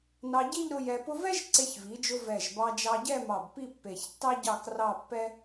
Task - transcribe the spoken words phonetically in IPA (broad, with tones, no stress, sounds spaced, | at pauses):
n ɑ˧ ɟ i˥˧ ʎ ɾ ʊ˧ j ɛ˧ p ʊ˥ v ɛ˥ ʒ ǀ e˧ ç v i˩˧ d͡ʒ ʊ˧ v ɛ˧˩ ʒ b ɑ˧ d͡ʒ ɑ˧ ɟ ɛ˥˧ m ɑ˧˩ b p i˥˧ pː e˧˩ ç tː ɑ˥ ɟ ɑ˥˧ k r ɑ˥˧ pː ɛ˥